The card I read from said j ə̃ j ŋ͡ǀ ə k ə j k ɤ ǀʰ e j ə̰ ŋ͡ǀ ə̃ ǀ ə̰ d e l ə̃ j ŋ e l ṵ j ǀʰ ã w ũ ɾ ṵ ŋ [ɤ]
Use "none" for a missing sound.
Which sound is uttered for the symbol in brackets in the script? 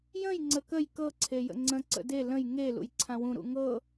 ɤ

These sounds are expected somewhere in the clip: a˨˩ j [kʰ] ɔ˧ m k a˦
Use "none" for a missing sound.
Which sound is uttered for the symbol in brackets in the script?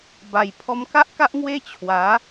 pʰ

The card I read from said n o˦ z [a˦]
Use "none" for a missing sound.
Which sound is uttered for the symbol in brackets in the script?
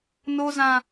ã˦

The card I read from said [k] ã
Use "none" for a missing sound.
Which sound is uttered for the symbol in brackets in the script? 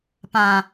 p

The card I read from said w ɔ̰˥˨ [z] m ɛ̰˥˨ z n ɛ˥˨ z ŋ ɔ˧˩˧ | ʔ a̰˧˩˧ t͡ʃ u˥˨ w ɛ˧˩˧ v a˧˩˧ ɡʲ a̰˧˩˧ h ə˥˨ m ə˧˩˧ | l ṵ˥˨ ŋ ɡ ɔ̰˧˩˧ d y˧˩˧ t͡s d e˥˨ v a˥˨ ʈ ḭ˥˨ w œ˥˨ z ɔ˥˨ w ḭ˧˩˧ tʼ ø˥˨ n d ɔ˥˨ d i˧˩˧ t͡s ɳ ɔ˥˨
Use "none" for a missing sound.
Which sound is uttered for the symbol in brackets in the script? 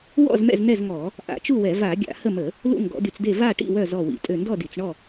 z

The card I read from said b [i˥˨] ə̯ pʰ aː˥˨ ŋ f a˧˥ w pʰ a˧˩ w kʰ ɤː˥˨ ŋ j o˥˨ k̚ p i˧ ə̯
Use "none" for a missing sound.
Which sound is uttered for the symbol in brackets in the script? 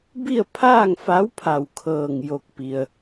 i˥˨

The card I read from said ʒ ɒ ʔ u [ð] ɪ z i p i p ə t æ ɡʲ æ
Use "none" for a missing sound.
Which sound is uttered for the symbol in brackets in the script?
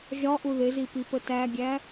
ð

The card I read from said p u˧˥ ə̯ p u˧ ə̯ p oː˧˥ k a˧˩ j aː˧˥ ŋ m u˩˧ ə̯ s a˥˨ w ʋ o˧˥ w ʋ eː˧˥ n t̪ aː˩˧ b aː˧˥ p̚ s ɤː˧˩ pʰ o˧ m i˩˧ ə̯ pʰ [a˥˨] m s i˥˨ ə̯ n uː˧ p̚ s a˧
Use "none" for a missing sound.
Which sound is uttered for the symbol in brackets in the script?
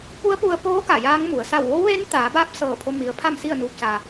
a˥˨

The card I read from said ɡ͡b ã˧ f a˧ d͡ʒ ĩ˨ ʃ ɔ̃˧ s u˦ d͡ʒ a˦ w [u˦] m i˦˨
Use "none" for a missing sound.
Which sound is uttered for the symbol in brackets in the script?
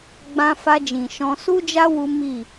u˦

